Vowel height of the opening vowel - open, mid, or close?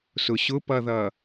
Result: close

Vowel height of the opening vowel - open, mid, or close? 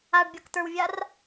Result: open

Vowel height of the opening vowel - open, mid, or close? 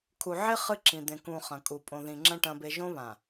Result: close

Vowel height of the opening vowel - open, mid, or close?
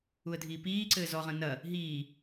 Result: close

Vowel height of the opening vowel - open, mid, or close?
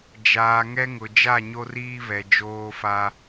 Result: open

